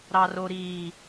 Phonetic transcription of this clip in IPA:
ɾ ɑ r o ɾ iː

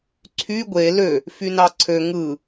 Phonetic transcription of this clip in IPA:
ǀʰ y ɡʷ e l ø | f y n ɑ ǀʰ ø ŋ ɯ

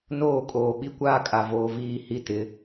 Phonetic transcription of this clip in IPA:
n oː˦˨ kʼ oː˨ ɓ i˦ kʷ aː˦ kʼ a˨ v oː˨ v iː˦˨ h i˦ t ɪ˨˦

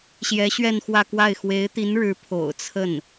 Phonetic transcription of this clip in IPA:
ɕ j ɛ˧˥ ɕ ɥ ɛ˥˧ n x w ä˥˧ k w a˥˩ ɪ̯ x w e˧˥ ɪ̯ t̪ i˧˥ n ɻ ɻ̩˧˥ pʰ o̰˨˩ ʊ̯ t͡sʰ ə˥˩ n

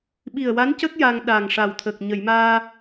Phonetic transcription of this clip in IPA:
ɓ i˨˩ ə̯ w a˧˥ n c ə˦˥ k̚ j a˧ ŋ ɗ a˨˩ ŋ ʂ a˨˩ w t̪ʰ ə˨˩ k̚ ɲ ə˨˩˨ j m aː˧

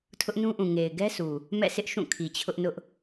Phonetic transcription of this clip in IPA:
tʰ ʊ˦ ʔ n ũ˦ ʔ ũ˨ ŋ e˨ ɪ̯ ɡ ɛ˦ s u˨ | m ɛ̰˦˨ s ɪ˦ ʔ ʃ ũ˦˨ kʰ i˨ t͡ɕʰ ʊ˦ ʔ n ʊ˦ ʔ

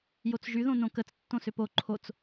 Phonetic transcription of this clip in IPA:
j o t͡s ʒ y ð õ n õ k ə t͡s tː õ s ʏ p o ǃʰ o t͡s

